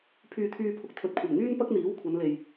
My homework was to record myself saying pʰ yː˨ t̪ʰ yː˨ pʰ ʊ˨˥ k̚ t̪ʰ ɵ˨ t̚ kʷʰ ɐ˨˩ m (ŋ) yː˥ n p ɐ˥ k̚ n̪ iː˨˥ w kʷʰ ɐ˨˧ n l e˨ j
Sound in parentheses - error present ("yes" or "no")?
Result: no